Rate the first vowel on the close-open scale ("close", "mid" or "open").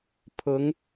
close